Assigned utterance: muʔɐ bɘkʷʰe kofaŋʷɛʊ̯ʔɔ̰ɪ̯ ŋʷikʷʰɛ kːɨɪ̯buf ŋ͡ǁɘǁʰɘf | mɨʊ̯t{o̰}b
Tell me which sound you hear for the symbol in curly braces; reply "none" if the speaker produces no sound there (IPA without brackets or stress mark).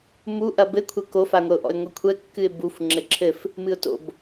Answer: o̰